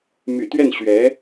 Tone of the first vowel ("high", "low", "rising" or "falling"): low